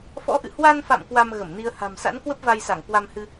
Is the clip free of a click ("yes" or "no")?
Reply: yes